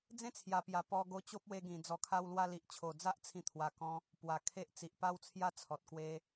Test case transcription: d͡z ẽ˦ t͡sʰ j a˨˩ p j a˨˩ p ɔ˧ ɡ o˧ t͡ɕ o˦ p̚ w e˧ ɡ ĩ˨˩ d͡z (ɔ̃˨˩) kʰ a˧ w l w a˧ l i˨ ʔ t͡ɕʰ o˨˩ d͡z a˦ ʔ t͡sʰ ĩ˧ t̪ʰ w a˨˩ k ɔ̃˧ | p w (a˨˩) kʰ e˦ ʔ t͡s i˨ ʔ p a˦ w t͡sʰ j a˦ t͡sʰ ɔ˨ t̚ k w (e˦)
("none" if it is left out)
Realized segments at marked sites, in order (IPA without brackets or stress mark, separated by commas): ɔ˨˩, a˨˩, e˦